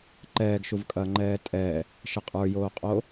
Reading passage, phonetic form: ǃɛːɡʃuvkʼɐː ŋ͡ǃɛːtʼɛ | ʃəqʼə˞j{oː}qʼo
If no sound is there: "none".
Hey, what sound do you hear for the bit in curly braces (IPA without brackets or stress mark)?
oː